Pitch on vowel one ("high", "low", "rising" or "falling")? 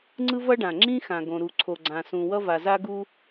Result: high